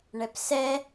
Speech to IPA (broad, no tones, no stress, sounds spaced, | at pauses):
ɳ ɛ p s ɛ